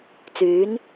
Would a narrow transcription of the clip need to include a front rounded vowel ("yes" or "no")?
yes